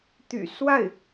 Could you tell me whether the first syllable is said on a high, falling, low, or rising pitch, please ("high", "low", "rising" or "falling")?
low